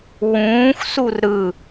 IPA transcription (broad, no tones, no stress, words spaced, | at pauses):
wũːxsur ɾɯ